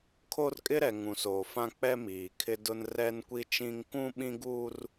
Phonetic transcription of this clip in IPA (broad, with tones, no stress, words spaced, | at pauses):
kʰo˦rkʼɪ˦ɾɛ˨ ŋũ˨soː˨ fã˦k͡pɛ˦miː˨ kʰɪ˦dʊ˦n rɛ˦nkʷi˦t͡ʃĩ˦ŋ kũ˦ɓĩ˦ɡuː˦r